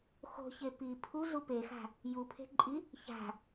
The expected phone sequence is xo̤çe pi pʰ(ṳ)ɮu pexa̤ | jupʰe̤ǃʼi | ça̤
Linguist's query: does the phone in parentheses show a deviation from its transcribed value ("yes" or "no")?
yes